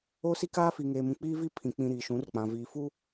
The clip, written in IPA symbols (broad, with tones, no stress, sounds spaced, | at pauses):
o˦ s i˦ k aː˦ f i˨ ŋ eː˨ m ũ˨ k͡p iː˦ v i˦ pʰ ĩ˨ k͡p ĩ˦ ɾ iː˨ ʃ ũ˨˦ r k͡p ã˨ v iː˨ f u˦